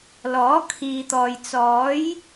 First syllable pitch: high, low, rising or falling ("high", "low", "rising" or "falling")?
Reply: rising